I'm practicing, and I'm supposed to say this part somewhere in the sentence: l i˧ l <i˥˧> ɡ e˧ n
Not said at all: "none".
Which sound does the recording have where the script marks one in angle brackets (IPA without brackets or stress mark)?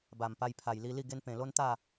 i˥˧